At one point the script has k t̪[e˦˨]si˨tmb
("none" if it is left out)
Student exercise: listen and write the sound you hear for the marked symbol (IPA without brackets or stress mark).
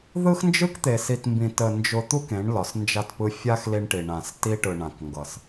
e˨